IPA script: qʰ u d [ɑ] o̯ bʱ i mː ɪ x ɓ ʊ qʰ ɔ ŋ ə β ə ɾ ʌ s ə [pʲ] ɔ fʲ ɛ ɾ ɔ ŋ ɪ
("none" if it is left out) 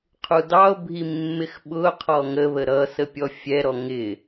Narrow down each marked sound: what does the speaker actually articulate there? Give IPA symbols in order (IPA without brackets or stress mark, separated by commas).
ɑ, pʲ